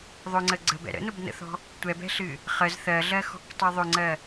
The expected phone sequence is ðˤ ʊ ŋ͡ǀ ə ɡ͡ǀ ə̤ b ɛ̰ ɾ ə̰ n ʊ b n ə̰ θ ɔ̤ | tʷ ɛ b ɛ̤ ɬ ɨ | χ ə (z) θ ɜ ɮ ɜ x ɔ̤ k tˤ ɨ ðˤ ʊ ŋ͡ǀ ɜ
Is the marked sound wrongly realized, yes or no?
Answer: no